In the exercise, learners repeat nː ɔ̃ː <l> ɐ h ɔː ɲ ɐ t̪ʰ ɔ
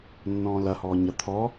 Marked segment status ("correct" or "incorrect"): correct